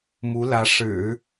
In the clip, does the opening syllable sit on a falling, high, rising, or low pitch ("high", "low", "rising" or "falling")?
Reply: rising